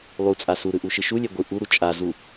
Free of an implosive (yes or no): yes